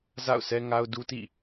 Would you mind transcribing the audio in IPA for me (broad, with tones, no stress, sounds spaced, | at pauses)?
z a̰˦˨ ʊ̯ sʰ ɛ˦ ŋ a˦ ʊ̯ d u˦ t ḭ˦˨